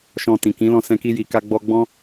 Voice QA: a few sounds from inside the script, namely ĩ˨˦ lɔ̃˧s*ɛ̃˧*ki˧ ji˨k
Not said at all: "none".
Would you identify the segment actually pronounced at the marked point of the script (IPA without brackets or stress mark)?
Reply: ɛ̃˧